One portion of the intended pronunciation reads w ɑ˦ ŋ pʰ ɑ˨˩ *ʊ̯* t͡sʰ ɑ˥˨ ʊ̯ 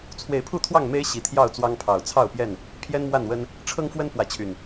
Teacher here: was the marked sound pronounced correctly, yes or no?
yes